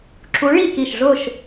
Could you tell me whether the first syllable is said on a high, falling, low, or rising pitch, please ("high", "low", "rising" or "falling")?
rising